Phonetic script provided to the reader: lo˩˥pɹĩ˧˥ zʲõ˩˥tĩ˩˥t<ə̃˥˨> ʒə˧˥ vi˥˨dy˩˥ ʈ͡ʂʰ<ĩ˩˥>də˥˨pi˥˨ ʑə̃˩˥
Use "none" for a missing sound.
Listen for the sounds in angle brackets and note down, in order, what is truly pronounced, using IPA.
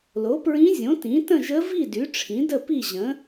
ə̃˥˨, ĩ˩˥

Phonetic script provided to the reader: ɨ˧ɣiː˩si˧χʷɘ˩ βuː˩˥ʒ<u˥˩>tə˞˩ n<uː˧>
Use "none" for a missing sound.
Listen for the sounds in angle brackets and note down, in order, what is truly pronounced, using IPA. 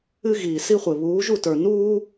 u˥˩, uː˥

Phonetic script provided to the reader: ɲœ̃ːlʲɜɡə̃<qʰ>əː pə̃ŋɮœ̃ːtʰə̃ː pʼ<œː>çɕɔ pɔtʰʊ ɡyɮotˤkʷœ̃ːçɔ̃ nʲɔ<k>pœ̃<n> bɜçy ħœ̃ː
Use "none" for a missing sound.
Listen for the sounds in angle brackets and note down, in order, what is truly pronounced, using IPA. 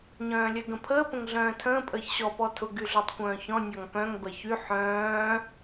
pʰ, əː, ŋ, ŋ

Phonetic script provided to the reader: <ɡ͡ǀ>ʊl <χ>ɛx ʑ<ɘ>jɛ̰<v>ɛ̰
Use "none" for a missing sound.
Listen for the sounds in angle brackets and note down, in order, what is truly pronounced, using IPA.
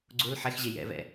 ɡ͡ǀ, ħ, e, v

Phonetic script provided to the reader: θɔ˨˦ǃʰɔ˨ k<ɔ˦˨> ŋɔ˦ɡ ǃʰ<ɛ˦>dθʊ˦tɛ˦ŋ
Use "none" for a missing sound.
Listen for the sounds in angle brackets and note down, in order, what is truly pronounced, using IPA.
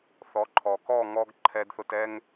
ɔ˦˨, ɛ˦

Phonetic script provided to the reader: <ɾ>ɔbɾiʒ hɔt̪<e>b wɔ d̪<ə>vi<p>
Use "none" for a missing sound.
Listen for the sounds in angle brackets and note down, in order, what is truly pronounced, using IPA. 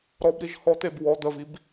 ɾ, e, ə, b

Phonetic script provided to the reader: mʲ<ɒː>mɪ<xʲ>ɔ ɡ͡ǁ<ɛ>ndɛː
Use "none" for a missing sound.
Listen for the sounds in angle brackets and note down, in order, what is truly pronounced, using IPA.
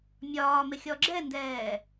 ɒː, xʲ, ɛ

